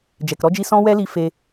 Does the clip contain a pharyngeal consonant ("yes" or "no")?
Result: no